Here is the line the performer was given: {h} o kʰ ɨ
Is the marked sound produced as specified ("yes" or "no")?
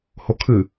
yes